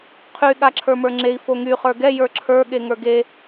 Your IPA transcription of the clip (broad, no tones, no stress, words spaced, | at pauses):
qʰy ɠaǁʰə˞mə˞ŋ͡ǁei̯ foŋy χə˞ɡɛ jə˞ǁʰə˞ ɠeŋə˞ɡe